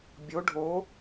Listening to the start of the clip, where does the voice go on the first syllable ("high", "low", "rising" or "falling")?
rising